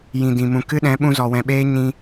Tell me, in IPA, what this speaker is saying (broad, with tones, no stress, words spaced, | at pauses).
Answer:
jĩ˨dĩ˨mũ˨ kɨ˦ɗɛ̃˨˦ ɓũ˧zɔ˨wɛ̃˨ɓeː˦ ɲĩ˧